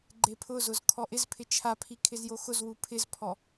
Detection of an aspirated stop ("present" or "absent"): present